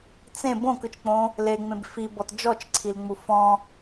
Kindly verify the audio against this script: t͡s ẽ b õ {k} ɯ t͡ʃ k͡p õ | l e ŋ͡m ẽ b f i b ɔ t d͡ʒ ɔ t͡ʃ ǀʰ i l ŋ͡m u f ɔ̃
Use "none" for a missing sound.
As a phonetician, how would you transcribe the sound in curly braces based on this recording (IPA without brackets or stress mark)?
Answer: k